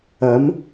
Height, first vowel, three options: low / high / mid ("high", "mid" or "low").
low